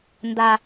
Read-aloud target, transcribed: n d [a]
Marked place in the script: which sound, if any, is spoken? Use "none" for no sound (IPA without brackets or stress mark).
a